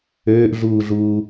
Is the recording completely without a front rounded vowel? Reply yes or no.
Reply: no